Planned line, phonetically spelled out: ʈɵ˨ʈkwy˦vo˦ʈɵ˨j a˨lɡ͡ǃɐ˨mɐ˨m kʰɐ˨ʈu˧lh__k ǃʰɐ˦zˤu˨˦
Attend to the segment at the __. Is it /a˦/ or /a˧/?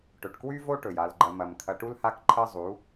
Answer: a˧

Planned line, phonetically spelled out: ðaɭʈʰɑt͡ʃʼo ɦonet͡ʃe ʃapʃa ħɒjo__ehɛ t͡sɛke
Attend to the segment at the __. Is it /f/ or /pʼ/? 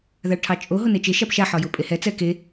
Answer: pʼ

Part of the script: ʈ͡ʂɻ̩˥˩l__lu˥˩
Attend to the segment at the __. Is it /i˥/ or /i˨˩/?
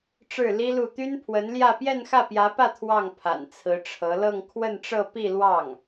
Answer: i˥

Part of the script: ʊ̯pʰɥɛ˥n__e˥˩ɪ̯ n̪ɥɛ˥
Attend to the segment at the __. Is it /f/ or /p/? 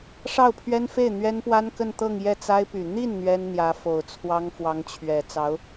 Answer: f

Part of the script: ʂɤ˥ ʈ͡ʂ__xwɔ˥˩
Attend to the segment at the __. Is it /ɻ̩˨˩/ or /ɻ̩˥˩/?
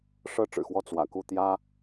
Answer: ɻ̩˨˩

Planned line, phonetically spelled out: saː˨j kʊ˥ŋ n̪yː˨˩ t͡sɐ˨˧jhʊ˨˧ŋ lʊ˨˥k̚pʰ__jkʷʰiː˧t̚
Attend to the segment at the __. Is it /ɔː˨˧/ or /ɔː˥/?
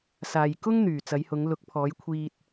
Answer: ɔː˨˧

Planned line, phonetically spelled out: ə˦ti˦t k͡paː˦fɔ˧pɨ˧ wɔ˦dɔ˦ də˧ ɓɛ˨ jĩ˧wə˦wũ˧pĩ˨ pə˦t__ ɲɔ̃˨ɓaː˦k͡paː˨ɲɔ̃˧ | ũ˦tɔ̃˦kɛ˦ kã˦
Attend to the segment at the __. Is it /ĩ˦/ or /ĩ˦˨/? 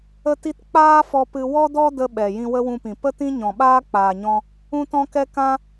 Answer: ĩ˦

